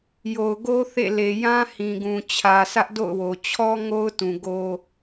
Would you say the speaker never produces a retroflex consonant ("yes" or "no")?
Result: yes